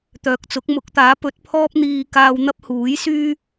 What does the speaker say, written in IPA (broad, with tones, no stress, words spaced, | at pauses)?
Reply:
t̪œː˨k̚t͡sʊ˨˥k̚ mʊ˨˥k̚t̪aː˨˥pɵ˨˥t̚ pʰɔː˥p̚n̪iː˧kaː˧w n̪ɐ˥p̚huː˨˥jsyː˥